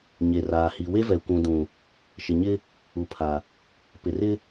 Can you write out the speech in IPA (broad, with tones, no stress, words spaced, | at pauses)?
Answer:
ɲe˨raː˨hi˨ we˦vɛ˨kʷũ˨ dũ˨ | ʃɪ˨ɲɪ˦ | u˨pʰa˨ | pɪ˨rɪ˦